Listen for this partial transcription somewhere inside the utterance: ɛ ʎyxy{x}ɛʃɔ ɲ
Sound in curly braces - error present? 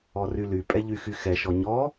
no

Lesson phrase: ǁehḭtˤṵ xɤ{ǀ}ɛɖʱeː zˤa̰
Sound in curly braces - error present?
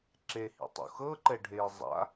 yes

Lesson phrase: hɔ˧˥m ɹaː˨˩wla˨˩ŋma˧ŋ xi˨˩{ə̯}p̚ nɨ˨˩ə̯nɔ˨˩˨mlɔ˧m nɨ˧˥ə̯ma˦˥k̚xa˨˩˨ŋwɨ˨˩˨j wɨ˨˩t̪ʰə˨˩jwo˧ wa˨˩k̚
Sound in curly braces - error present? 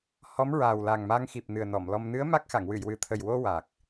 yes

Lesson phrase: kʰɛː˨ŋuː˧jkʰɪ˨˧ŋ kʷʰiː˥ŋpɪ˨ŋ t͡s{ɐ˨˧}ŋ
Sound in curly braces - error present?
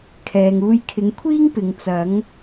no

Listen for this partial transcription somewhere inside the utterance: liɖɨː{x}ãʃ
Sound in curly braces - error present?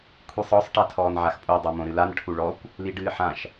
yes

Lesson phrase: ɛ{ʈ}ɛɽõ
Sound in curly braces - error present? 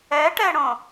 no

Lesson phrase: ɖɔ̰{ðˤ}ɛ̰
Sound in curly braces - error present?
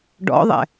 no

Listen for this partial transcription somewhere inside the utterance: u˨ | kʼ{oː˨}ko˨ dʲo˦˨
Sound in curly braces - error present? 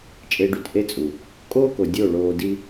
yes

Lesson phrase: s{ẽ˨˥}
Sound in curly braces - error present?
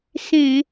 yes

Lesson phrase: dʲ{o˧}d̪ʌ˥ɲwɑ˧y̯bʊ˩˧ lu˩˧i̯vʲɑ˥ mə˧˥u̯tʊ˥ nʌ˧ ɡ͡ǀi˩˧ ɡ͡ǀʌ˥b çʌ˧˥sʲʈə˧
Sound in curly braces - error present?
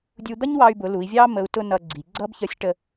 yes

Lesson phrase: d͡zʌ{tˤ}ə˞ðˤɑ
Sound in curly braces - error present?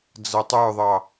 no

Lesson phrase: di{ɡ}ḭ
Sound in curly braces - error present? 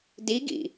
no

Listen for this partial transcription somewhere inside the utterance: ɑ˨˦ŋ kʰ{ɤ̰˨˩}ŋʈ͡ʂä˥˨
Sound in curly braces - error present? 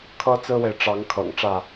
no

